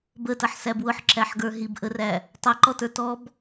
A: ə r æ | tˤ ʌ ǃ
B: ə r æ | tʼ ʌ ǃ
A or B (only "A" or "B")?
A